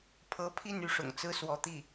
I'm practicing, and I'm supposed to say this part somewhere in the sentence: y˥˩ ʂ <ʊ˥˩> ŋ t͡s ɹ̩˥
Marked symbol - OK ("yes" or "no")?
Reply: no